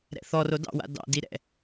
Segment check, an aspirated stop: absent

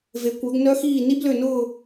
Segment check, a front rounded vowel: present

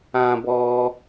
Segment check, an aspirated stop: absent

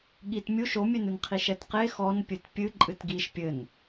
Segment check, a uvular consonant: present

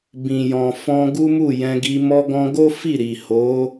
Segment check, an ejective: absent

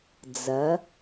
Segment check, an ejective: absent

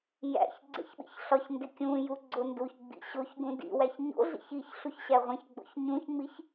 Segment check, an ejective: absent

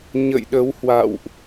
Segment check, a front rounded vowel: absent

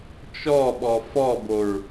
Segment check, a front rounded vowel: absent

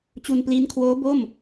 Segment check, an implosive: absent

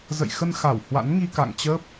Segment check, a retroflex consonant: absent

